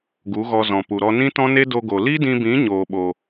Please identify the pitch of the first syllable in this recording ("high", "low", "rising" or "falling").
rising